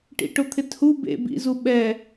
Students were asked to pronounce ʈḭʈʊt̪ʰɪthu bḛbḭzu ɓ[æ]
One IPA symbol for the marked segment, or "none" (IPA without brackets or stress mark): ɛ